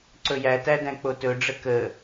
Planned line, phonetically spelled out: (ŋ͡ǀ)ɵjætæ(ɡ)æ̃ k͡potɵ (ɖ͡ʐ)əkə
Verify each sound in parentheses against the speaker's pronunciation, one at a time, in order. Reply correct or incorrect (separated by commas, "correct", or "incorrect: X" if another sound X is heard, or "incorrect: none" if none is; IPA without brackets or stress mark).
incorrect: ǀ, incorrect: d, correct